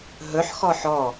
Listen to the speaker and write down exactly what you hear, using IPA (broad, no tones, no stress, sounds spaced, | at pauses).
ɦ ɵ ħ x ɔ ħ ɔ